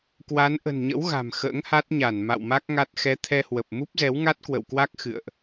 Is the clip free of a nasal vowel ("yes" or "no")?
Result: yes